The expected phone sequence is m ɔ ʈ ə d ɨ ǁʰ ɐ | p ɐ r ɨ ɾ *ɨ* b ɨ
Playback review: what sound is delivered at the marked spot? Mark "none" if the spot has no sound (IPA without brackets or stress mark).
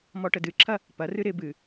ɪ